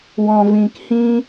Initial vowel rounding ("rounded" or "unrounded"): rounded